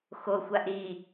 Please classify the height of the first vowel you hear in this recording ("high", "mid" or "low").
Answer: mid